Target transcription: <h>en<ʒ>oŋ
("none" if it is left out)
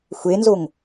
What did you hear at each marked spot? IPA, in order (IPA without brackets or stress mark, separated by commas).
xʷ, z